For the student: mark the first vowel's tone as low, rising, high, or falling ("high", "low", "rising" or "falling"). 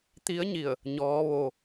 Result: rising